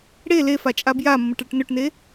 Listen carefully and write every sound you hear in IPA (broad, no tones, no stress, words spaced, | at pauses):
ɽe lefa t͡ʃʼabjamːəʈ ɭəʈnøʈne